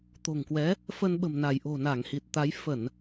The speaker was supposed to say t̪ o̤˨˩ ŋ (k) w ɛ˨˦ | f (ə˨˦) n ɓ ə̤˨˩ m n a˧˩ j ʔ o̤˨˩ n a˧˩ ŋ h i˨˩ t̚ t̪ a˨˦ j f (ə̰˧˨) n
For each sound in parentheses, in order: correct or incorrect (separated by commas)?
correct, incorrect, incorrect